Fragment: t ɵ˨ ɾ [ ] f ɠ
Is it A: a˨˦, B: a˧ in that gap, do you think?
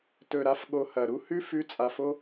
A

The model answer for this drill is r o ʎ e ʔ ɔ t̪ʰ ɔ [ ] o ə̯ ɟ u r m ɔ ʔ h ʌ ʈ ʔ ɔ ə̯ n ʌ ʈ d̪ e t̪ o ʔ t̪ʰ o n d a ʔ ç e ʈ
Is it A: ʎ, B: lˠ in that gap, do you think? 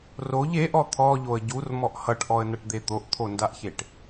A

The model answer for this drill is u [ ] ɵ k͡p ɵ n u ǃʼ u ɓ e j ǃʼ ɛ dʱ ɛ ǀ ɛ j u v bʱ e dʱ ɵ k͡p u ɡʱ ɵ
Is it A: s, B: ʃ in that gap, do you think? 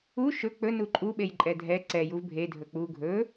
B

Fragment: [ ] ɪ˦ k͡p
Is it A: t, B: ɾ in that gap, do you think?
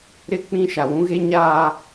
B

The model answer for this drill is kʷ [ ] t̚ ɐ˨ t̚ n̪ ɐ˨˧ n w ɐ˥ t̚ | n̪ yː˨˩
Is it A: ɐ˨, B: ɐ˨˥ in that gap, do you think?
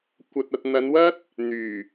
A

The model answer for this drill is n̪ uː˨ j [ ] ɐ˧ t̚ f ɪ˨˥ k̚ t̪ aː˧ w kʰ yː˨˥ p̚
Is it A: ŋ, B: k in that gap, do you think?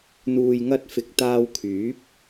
A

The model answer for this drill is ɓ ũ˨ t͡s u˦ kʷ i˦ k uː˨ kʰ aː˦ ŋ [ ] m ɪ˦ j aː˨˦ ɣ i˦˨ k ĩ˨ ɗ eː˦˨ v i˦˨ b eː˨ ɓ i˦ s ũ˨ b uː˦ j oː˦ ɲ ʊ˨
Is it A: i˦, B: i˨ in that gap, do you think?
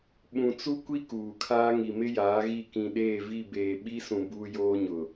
B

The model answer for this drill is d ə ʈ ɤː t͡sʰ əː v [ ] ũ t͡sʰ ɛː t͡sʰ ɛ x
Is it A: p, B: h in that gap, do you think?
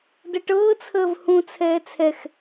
B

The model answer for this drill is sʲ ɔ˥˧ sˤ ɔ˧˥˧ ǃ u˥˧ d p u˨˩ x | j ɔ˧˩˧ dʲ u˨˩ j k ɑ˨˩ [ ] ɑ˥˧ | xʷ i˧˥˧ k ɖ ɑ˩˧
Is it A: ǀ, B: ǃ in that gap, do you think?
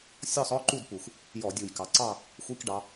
A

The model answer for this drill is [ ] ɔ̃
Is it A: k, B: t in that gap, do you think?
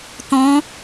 B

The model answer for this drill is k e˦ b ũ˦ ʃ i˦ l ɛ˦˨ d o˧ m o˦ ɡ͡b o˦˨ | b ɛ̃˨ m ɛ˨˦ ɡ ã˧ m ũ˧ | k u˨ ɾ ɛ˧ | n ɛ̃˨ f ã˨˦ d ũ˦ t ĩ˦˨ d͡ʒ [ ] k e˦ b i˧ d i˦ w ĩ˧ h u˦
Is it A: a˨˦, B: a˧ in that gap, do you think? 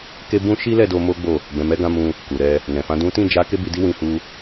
A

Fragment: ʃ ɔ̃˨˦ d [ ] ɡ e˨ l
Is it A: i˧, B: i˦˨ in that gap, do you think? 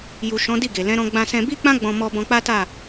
B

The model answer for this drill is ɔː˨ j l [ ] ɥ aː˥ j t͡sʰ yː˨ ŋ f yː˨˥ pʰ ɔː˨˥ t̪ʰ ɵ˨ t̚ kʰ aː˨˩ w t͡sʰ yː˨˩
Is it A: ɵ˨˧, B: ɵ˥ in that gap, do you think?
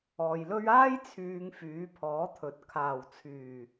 B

